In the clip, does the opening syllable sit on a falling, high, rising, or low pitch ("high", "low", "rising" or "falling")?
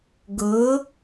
rising